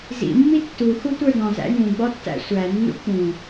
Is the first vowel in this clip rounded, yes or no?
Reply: no